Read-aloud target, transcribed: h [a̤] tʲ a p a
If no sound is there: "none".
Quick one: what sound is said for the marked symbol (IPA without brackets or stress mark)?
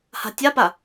a̤